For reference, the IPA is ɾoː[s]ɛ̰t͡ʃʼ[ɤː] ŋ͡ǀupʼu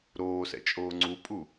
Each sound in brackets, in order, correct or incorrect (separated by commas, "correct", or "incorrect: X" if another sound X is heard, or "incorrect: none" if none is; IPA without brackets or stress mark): correct, incorrect: oː